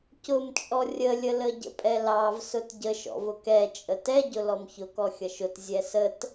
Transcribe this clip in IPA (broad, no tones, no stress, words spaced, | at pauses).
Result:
cʊmt͡ʃʼɔ rʲəlʲələ ɟə̰pʼɛlɑv sʊtɟə ʃɔ̰vʊkɛ t͡ʃʼətɛɟʊ lɔmçʊkɔ xʲʌʃʊt zʲɛsət